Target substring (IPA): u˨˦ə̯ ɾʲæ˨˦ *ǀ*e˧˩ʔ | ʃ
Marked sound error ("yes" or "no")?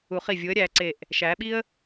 no